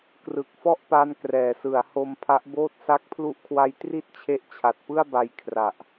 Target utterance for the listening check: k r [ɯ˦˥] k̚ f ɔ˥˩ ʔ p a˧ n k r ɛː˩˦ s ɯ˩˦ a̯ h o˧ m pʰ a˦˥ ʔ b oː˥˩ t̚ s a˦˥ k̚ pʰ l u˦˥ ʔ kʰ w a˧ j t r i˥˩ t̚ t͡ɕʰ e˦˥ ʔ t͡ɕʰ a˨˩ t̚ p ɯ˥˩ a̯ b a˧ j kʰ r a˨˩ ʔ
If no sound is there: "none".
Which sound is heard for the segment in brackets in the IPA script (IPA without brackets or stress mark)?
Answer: ɯ˨˩